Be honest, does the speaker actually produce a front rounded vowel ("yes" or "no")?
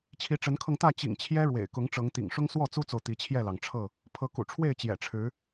no